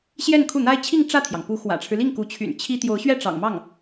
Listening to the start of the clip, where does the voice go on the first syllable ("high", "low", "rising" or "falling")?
falling